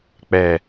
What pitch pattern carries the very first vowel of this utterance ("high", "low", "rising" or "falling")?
low